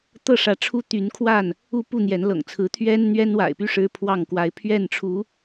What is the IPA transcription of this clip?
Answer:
t̪ ɤ˥˨ ʂ ä˨˦ ʈ͡ʂʰ u˦ t̪ y˨˦ n kʰ w a˥˨ n | u˥˨ p u˥˨ n̪ j ɛ˨˦ n l ɤ̰˨˩ ŋ t͡sʰ ɹ̩˨˦ t̪ʰ ɥ ɛ˦ n n̪ ɥ ɛ˦ n w a̰˨˩ ɪ̯ p y˦ ʂ ɻ̩˦ pʰ w ɑ˥˨ ŋ k w a˨˦ ɪ̯ pʰ ɥ ɛ˥˨ n ʈ͡ʂʰ u˨˦

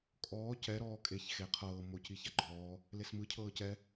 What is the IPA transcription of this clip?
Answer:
kʼ ɔː c ɛ ɾ ɔː kʼ e ç x e qʰ ɤː m o c i ç a ɡ͡ǃ ɔː | l e s m ɯ cʰ ɤː c ɛ

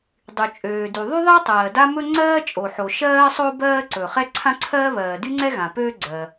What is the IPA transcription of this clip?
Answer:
dˤ y˩ t͡ʃʼ øː˩ d y˩ ðˤ y˥ ðˤ ɛ˥ tˤ ɜː˩ d a˥ m ɵ˥ ŋ͡ǀ ɜː˥ t͡ʃʼ o˩ ħ o˩ ʃ ɜː˥ sˤ o˥ b ɜː˥ ǀ ɵ˩ χ ɛ˥ ǀʰ ã˥ ǀʰ ɜː˥ β ɜː˩ d y˥ ŋ͡ǀ ɛ˥ ɣ ã˩ p øː˥ ɡ͡ǀ ɜː˩

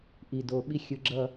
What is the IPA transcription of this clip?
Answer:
ʔ i˧˩ d o˧ ɓ i˥ xʲ ɯ˧ ɡ͡ǁ ʌ˥˧

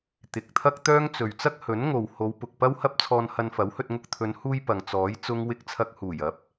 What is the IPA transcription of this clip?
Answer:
t̪ ɪ˨˥ k̚ t̪ʰ ɐ˥ k̚ t̪ œː˥ ŋ t͡s ɵ˨ ɥ t͡s ɐ˥ k̚ h ɵ˨˥ n ŋ o˨ w h o˨˧ w p ʊ˨ k̚ p ɐ˥ w h ɐ˥ p̚ t͡sʰ ɔː˧ n h ɐ˧ n f ɐ˨˥ w h ɵ˧ t̚ ŋ ʊ˧ k̚ t̪ʰ ɵ˨˧ n h uː˧ j p ɐ˨ ŋ t͡s ɔː˨˥ j t͡s ʊ˥ ŋ w ɪ˥ k̚ t͡sʰ ɐ˧ k̚ h uː˨˩ j ɐ˨˥ p̚

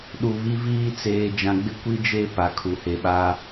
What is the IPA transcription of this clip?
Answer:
ɗ u˨ β i˦ v iː˦ t͡s eː˨ d͡ʒ ã˨ ɡ͡b ɪ˦ kʷ i˦ d͡ʒ e˦˨ p a˨ kʰ u˨ h e˨ ɓ a˦

